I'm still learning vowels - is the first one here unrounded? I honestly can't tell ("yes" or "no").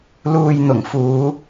no